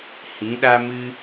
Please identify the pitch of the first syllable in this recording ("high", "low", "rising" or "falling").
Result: rising